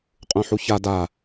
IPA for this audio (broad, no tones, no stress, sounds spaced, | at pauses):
qʼ ũ ħ u ç a d a